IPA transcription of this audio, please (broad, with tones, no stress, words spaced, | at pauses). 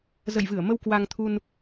zə̰˧˨jvɨ˧˩ə̯mə˧w kwa˧ŋt̪ʰu˧n